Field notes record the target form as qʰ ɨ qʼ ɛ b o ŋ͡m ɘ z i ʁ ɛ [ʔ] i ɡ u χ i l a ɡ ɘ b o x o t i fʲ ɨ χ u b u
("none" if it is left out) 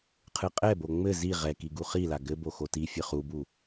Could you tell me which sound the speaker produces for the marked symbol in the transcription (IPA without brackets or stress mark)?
k